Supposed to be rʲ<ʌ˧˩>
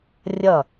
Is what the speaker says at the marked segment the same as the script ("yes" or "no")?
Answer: yes